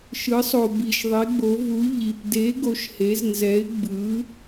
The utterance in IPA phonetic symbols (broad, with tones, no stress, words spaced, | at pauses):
ʃɯ˩˧sˤo˩bi˩ʃ ðˤe˩˧ɡ͡bo˩˧vu˩˧ ʎi˩p de˩˧ ɡo˩˧ʃhe˩˧z nzɛ˩˧ɪ̯ ɡ͡bɯ˩˧